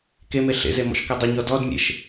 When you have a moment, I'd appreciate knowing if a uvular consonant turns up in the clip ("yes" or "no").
no